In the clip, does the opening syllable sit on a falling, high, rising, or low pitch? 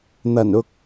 low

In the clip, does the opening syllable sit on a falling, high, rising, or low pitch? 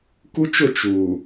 high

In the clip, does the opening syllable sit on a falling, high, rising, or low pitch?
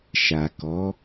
low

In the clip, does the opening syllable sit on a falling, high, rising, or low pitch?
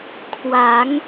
rising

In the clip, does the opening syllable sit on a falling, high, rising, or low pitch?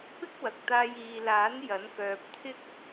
high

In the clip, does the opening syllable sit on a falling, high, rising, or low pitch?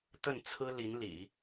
falling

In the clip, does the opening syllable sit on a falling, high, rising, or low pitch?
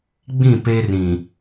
falling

